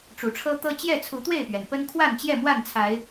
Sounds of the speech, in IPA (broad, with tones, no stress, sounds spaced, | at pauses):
ʈ͡ʂ u˨˩ ʈ͡ʂʰ ɤ˦ t̪ ɤ˦ t͡ɕ j ɛ˥˨ t͡sʰ u˨˦ t̪ w e˥˨ ɪ̯ p ɥ ɛ˩ n p ə˦ n kʰ w a˥˨ n t͡ɕ j ɛ˥˨ m w a˥˨ n t͡sʰ a˨˦ ɪ̯